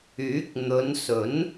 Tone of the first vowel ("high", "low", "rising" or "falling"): rising